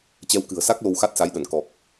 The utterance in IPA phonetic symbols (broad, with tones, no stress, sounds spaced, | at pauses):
t͡ɕ ɛ˧ w k ɨ̤˨˩ ə̯ s a˦˥ k̚ l o˧ w x a˦˥ t̚ s a˨˦ j ɗ ə˧˩ n k ɔ˨˩ k̚